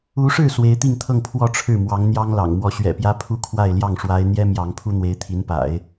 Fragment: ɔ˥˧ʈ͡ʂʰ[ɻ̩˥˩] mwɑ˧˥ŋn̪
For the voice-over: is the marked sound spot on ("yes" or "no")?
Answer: yes